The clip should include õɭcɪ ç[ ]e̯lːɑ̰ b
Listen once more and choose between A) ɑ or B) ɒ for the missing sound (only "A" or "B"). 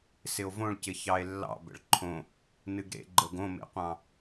A